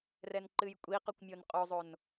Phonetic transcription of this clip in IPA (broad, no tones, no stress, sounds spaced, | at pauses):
r ɛ n ǃ ɨ j kʷʼ i q o kʷ mʲ o n qʼ o zˤ o n